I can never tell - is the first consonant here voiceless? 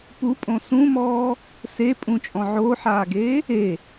yes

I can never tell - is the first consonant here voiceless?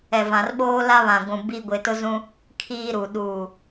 no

